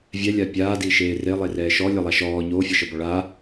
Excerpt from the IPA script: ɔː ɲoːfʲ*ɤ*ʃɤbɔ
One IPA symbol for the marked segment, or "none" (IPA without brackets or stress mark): ɤ